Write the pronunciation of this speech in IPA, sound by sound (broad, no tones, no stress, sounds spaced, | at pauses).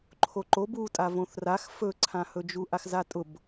ǃʰ o ǃ o b u tʼ a v õ θ r a x f ɵ ǀʰ ã h ɵ d͡ʒ u ʔ a x z a tʼ ʊ b